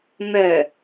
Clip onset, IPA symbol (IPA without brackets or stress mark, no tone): n̪